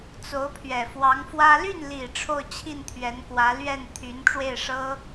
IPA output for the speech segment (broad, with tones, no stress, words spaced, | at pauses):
t͡so˧˥ʊ̯pʰɥɛ˨˩ fwɑ˧˥ŋfwä˥ ly˥˩nli˨˩ ʈ͡ʂʰo˥˧ʊ̯t͡ɕʰi˥˩n t̪ʰɥɛ˧˥nkwä˧˥ lɥɛ˥˩nt̪ʰy˧˥n ʈ͡ʂwe˥˩ɪ̯ʂɤ˥